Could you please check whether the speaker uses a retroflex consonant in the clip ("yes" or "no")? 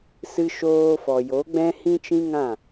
no